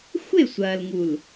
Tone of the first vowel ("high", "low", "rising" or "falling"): falling